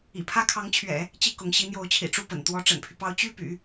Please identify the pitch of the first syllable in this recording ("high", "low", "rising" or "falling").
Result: low